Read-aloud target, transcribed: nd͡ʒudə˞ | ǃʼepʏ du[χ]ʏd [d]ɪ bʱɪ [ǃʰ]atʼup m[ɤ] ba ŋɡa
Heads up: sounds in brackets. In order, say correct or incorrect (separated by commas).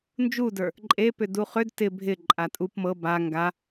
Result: correct, incorrect, incorrect, correct